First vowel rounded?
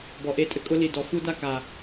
yes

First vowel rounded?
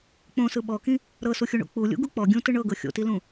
yes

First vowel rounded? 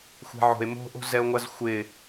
no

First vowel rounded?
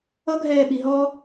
no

